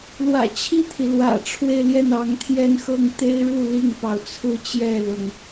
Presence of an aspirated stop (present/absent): present